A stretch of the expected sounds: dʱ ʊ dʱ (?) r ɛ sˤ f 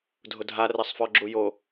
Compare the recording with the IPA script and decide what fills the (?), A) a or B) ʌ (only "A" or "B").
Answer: A